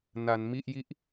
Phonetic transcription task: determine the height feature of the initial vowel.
low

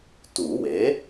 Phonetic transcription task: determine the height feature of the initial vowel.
high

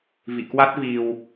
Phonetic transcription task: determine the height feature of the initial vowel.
high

